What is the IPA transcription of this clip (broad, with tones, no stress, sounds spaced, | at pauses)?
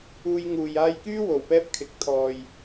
uː˧ j ŋ uː˨ j aː˥ j k yː˥ w o˨ w p ɛː˥ p̚ kʰ ɪ˨˥ k̚ t̪ʰ ɔː˨ j